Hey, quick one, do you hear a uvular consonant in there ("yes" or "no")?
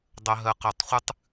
yes